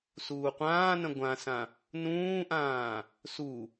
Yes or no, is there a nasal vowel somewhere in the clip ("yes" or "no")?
yes